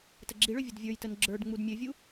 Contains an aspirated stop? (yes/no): no